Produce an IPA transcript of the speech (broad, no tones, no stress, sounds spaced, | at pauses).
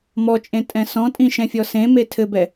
m ɔ t͡ʃʼ ẽ tʼ ɛ̃ s ɔ̃ tʼ ĩ ʃ ɛ̃ fʲ ɔ s ẽ m e tʰ ɘ b ɛ